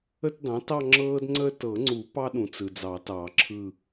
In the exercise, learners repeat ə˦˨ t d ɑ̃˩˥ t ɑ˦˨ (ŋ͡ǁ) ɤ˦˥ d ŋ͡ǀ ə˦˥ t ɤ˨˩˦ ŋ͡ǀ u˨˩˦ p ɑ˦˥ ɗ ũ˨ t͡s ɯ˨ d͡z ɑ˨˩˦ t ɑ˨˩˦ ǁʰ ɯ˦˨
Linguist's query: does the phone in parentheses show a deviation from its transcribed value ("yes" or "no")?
no